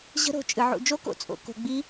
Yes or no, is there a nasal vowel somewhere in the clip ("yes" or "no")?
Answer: no